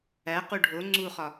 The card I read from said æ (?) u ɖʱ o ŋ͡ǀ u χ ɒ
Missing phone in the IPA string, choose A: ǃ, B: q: B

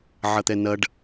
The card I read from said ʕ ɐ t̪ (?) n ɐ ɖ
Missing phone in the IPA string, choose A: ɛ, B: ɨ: A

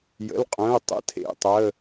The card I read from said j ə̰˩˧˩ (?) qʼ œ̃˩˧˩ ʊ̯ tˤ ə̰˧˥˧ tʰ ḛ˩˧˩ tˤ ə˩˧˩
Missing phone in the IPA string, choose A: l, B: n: A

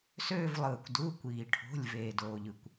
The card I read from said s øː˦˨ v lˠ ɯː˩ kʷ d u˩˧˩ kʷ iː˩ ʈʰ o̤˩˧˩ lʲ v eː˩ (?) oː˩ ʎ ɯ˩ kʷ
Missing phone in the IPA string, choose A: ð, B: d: B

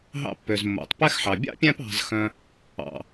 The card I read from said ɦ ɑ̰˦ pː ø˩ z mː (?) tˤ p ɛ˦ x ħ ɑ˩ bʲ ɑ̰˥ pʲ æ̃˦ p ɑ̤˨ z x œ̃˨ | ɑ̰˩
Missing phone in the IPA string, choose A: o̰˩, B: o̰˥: A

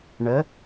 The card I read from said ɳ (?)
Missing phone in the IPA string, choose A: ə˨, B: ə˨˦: B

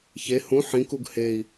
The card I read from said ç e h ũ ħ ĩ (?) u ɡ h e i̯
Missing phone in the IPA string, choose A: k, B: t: A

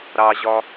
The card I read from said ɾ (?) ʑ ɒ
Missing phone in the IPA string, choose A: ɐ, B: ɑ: B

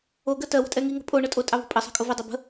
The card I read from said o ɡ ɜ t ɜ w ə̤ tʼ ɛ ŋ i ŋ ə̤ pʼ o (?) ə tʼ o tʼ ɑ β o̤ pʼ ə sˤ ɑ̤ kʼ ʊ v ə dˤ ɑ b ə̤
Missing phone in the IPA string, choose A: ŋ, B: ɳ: B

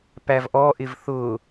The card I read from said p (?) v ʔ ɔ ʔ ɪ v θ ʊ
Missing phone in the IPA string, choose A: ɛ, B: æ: B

